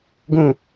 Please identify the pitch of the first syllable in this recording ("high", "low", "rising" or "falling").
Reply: falling